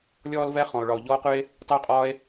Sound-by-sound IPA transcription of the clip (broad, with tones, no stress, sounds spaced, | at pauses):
lʲ ɔː˦ l v ɛ˦ χ ɔ̃˧ o̯ ɭ ɒ˧ o̯ ʎ ɔː˦ o̯ q ʉ˦ e̯ | tˤ ɪ˦ o̯ qʼ ɒː˦ e̯